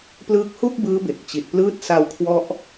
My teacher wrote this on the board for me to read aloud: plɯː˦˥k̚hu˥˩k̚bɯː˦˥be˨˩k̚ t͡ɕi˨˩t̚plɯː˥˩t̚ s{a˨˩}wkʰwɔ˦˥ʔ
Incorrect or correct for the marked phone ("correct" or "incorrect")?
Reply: incorrect